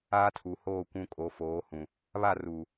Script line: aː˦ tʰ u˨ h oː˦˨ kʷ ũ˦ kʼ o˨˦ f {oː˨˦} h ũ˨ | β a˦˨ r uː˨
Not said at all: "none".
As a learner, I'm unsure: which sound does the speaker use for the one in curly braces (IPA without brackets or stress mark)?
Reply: oː˨˦